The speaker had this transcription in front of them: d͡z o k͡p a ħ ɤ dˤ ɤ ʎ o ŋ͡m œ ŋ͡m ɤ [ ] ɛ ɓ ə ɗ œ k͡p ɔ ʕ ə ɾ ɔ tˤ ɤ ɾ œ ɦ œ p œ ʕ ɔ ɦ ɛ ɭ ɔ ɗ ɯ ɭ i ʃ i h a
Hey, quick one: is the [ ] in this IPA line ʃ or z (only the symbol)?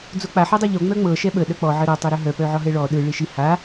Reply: ʃ